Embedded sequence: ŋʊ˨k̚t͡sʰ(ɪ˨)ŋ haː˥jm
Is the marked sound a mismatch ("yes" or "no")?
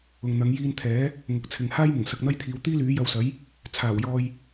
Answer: no